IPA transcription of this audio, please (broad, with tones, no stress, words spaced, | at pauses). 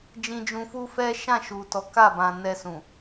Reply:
d͡ʒĩ˧d͡ʒũ˧fu˦fɛ˦ ʃã˦˨ʃu˨tɔ˨˦ ka˦˨bã˨ nɛ˧sũ˨